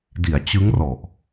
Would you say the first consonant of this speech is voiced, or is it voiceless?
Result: voiced